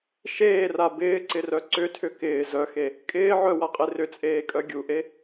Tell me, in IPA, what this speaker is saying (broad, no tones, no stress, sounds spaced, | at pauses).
ʃ eː r a b ɪː ǀ ɪ r œ ǀ ʏ tʰ ʏ k ɪː z œ x e | kʼ ɪː ʕ œ w a qʼ e r ʏ t͡sʼ eː kʼ œ ɡʲ u ʔ e